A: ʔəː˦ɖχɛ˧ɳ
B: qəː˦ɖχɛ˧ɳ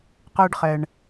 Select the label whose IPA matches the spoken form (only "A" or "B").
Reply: B